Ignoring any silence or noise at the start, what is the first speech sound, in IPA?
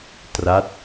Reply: t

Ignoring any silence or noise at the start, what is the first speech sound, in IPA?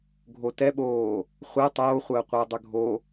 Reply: ɡʱ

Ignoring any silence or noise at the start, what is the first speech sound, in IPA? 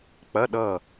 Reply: k͡p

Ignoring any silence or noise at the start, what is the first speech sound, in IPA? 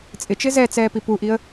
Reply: t͡sʼ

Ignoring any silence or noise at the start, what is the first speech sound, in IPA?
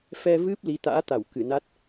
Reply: f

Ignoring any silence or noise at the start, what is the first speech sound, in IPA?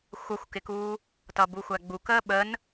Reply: xʷ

